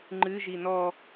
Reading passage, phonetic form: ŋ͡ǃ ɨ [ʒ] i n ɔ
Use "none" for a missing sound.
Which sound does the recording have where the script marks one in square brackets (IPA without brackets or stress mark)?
ʒ